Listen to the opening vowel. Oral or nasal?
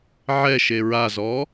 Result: oral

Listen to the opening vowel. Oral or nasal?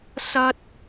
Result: oral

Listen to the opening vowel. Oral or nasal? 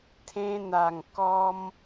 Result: nasal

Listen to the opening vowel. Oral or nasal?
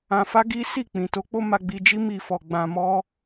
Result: nasal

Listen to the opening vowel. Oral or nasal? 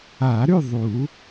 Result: oral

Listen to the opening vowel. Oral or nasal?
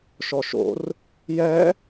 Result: oral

